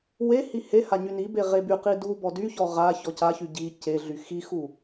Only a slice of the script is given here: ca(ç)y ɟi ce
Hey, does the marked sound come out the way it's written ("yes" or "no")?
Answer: yes